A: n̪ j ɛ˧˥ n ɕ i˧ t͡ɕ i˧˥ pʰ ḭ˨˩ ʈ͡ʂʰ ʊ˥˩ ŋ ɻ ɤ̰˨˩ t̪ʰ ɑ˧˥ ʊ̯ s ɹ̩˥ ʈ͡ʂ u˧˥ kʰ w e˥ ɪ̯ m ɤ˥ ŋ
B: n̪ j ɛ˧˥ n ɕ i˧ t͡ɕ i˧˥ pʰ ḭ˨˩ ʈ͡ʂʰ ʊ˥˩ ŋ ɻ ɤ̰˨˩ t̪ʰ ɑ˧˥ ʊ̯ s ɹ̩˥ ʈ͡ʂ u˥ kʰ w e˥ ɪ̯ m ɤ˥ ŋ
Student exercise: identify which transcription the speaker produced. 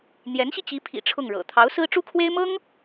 B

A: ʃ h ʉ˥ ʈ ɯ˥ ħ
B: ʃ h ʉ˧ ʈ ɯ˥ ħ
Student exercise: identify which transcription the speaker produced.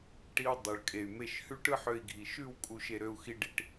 A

